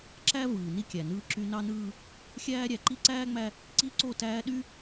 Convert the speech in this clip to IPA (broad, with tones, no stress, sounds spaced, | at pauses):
ǁ æ˦ v ɯː˨ n i˦ kʲ æ˨ n ɯː˦ ǁ y˦ n ɑ˦ n ɯː˦ | xʲ æː˦ ɾʲ æ˨ ǃ i˦ ǀ æː˦ ŋ͡m æ˦ | ǀ i˦ ǀ o˦˨ t æː˦ ɗ y˦